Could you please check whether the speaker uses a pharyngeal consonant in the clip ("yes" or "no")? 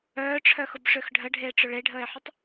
yes